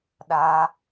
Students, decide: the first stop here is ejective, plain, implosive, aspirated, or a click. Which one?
implosive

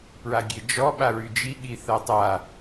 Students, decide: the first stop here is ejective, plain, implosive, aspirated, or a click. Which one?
plain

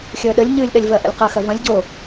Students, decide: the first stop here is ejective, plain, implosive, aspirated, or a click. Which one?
implosive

